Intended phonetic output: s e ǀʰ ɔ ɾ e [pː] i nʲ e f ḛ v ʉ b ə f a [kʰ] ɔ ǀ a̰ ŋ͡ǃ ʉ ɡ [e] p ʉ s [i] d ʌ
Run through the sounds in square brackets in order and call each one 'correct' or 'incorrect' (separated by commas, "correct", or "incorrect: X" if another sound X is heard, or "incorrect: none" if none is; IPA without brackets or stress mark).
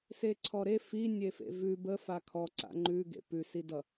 incorrect: f, correct, incorrect: ḛ, correct